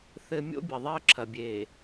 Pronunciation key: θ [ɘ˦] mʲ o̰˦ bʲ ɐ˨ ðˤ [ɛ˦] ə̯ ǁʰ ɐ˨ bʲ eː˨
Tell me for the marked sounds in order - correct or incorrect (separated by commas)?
correct, correct